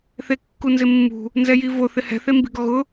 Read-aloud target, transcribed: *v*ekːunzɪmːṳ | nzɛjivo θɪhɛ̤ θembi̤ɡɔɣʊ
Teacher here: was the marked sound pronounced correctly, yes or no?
no